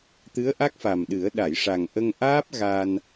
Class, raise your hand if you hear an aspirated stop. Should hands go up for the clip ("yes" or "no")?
no